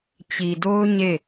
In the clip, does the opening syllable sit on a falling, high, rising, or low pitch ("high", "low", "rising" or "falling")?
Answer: low